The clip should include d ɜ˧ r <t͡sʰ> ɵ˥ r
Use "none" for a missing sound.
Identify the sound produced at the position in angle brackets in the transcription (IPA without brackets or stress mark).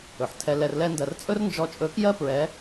t͡sʼ